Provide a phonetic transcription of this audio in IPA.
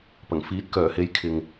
p ɐ˨˩ ŋ f iː˨˥ t̚ k œː˨˩ h e˨˥ j kʰ ɪ˨ ŋ

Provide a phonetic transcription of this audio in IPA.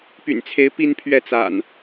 p y̰˨˩ n t͡sʰ e˨˦ ɪ̯ p i˦ n pʰ ɥ ɛ˥˨ t͡s a̰˨˩ n

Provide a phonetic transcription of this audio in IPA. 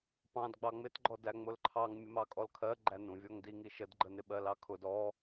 p ɑ̃ d ɡ͡b ɑ ŋ͡m ɪ t ɡ͡ǃ ɔ d æ ŋ͡m ʊ l ǃʰ ɑ ŋ mʲ ə m ɑ kʼ ɔ l kʰ ɜ ɡ͡ǃ æ n ũ vʲ ɔ ŋ d i ŋ i ʃ ə d ɡ͡ǃ ə n ɪ ɓ ɜ l ɑ kʰ ʊ d ɔ

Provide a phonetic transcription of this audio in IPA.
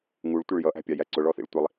ŋ u ɭ tʷ ɪ ɭ j ʌ ʔ æ̤ pʲ ɑ j æ ǀ ʊ ɭ ɔ θ ḭ ɭ tʷ i lˠ

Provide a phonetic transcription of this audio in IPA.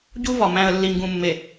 ɟ u˦ v ɒ˨ m æ̃˨ ə̯ lː i˨ ŋ ɡ ũ˨ mː e˨

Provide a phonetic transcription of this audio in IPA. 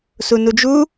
s u n u d͡ʒ u

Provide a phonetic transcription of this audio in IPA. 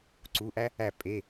ǀ u˩˧˩ ʔ æ˥ | æ˧˩ pʼ e˩˧˩

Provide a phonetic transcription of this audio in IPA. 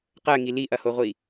q ɜ ŋ i l i ʔ ɐ h o ʁʷ i

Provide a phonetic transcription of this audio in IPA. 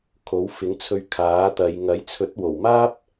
kʰ o˨˥ w f ɪ˨˥ ŋ t͡sʰ ɵ˧ ɥ kʰ aː˨˥ t̪ ɐ˨˧ j ŋ ɐ˨˥ j t͡sʰ ɵ˨˥ t̚ w o˨˩ w m aː˥ p̚

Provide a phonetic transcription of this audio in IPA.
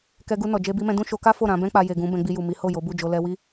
k ɛ˧ ɡ u˧ n ɔ˨ d͡ʒ e˧ b i˧ m ɛ̃˧ d ũ˦ ʃ o˧ k a˦ f o˦˨ ɾ ã˧ b ɛ̃˦ k͡p a˧ j e˨ ɡ ũ˨˦ b ɛ̃˧ ɡ͡b i˧ j u˨ m i˨˦ h o˦˨ j o˨˦ b u˦˨ d͡ʒ o˧ l ɛ˧ w i˦

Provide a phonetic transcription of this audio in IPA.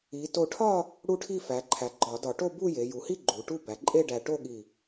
i˩˧ t o˧˩ ʈʰ ɒ˥˧ | ɽ u˥˧ ʈʰ i˥˧ f æ˩˧ ǃʰ æ˩˧ ɡ͡ǃ ɒ˧˩˧ d ɒ˧˩˧ ʈ o˥˧ b u˥˧ j e˩˧ j u˩˧ h i˥˧ ɡ͡ǃ u˩˧ ʈ u˥˧ b æ˩˧ ǃʼ e˥˧ ɖ æ˧˩ ʈ o˥˧ ɠ i˧˩

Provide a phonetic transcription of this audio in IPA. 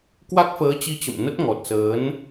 k w a˦˥ k̚ f əː˨˦ t͡ɕ i˧ t͡ɕ ə̰˧˨ m n ə˦˥ t̚ ŋ ɔ˨˩ t̚ s əː˨˦ n

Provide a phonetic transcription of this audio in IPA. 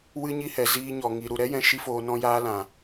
w ɨ˧ ɲ i˦ h ɛ˨ z iː˦ ɲ ɔ˨ ŋ i˨ ɾ u˨ ɾ ɛ˦ j ɛ̃˧ ʃ i˦ f oː˧ n ɔ̃˦ j aː˦ l ã˨

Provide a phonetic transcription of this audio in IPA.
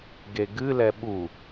ɡ e ɡ ɨ l ɛ ɓ u

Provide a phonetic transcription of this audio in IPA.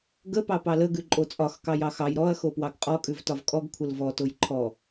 ɡ ə p ɑ p ɑ l ə ɡ ʉ ǃʼ o t͡sʼ ɒ x k ɑ j ɑ x ɑ j ɾ ɔ ɐ̯ x o p w ɑ ɡ qʼ ɔ kʼ ʉ v t ɒ v kʼ ɔ ɡ kʷʰ ə l v ɔ t o j ǃʰ ɔ

